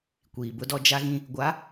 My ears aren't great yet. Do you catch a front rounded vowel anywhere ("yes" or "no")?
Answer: no